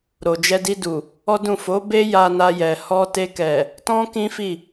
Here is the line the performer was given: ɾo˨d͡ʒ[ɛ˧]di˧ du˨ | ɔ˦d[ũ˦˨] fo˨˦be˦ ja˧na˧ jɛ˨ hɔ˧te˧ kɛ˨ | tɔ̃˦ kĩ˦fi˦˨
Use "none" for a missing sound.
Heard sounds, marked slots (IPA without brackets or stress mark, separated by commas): ɛ˧, ũ˦˨